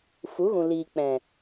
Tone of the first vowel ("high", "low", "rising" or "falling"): rising